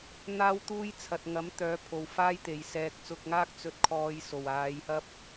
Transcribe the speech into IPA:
n̪aː˧wt̪uː˧j t͡sʰɐ˨t̚ŋɐ˨˥mt̪œː˨˥ pʰo˨wfaː˥jt̪e˨j sɛː˨k̚ t͡sʊ˧k̚ŋaː˥k̚ t͡sɵ˧t̚kʰɔː˧jso˨˩w aː˨˧jhɐ˥p̚

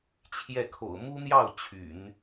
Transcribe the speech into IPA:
t͡ɕʰjɛ˥˩kʰo̰˨˩ʊ̯ mu˥n̪jɑ˥˩ʊ̯ t͡ɕʰy̰˨˩˦n

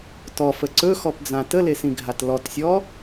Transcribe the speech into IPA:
tɔfə ǀɵxɔpd͡zã təlesĩɡʱat lɔtsʲɔ

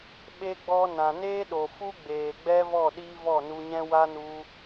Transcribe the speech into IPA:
ɓe˧ɡ͡bɔ˧ nã˨neː˦ɗo˨fu˦ ɡ͡beː˨ɡ͡bɛ˦vɔ˦˨ ɗiː˦vɔ˦˨nu˧ɲɛ̃˦ wa˦nu˧

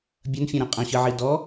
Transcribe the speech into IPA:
bʲɐnfʲɐ̃ɾɐ̃ qʼɐ̃ɕɨʕi dɔ

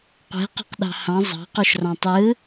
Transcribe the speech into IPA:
qʷe̤qæ̤qɗɑ̤ hɑ̃ zˤɑ̤quʃrɑ̃ tˤɯ

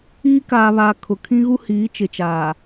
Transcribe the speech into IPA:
iː˦ kaː˨βaː˨ kʰʊ˨kʰĩ˦ɣu˦ hiː˨˦ t͡ʃɪ˨t͡ʃaː˨

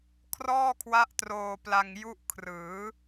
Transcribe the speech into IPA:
kʰrɔː˥˩kʰwa˦˥ʔ troː˧pla˧ŋ ju˦˥ʔkʰrɯː˩˦

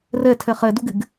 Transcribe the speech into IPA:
rɛtʰɛ χɛduɡɪɡ

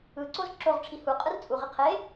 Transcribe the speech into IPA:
ɯǀoz ǁoʁʈ͡ʂʰi hu qʼɯrt͡sʼuʁi qʰe

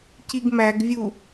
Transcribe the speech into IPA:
ciɡmæɡvʲu

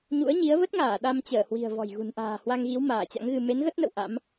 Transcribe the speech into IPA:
ɲṵ˧˥ə̯ɲi˨˦ə̯ və˦˥t̚ŋaː˧˩ ɗa˧m t͡ɕəː˧˩hwi̤˨˩ə̯ vɔ̤˨˩jɣṳ˨˩nʔa̤ː˨˩ hwa˧ŋɣi˨˦w maː˧˩t͡ɕa̰˧˥ŋɣɨ˧ me˨˦nɣə˦˥t̚nə̰˧˨w ʔa̰˧˥m

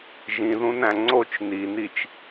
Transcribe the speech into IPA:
ʒĩðũnæ̃ ŋ͡ǀot͡ʃ ninit͡ʃ

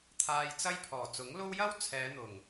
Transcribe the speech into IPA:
t̪ʰaː˧jt͡sɐ˥jpʰɔː˨˩ t͡sʊ˨˥ŋlo˥w jɐ˥w t͡sʰɛː˨˧n̪ʊ˨˩ŋ

